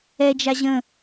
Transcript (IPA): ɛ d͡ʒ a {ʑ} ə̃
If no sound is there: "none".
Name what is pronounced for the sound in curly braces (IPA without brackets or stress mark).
ʑ